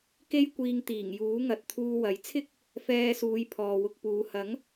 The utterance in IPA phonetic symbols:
k e˥ j kʷ iː˧ ŋ t̪ iː˨˩ ŋ j uː˨˥ ŋ ɐ˨ t̚ t̪ʰ uː˧ w ɐ˨˥ j t͡sʰ ɪ˥ k̚ | f ɛː˧ s uː˨˧ j pʰ ɔː˨ w ʊ˧ k̚ p uː˨˧ h ɐ˨˥ ŋ

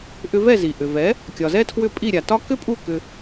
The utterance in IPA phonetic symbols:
ʔ ʏ˧ v ɛ˥˩ z i˩ ʔ ʏ˩ v ɛ˩˥ | kʲ ɒ˩ z ɛ˥ tʰ w ʏ˥˩ pʼ i˥˩ ɾʲ a˩ t ɒ˥ k ʏ˥ pʼ u˥˩ k ʏ˧

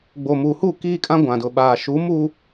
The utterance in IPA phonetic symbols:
ɡ͡b o˨ m u˨ h u˦˨ k iː˦ kʼ ã˦ ɡʷ ã˨ d ʊ˨ ɓ aː˨ ʃ u˨˦ m u˦

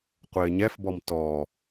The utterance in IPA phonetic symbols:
qʷ ɪː ɲ ɛ f b ɔ m t ɔ

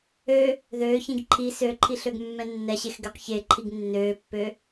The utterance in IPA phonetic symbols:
ø | ð øː ç ĩ ɡ ǃʰ i s ø ǃʰ i ɬ ø ɡ mː ɛ̃ nː ɛ ɕ e x ɡ ø q ç e ǃʰ i ɡ nː øː pː ø

